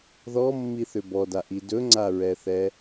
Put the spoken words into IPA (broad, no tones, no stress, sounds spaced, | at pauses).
ð ɔ mː i θ ʏ b ɔ d a ʔ i d ɵ ŋ͡ǀ a ɹ ɛ θ ɛ